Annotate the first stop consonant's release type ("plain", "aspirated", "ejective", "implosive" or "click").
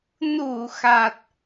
plain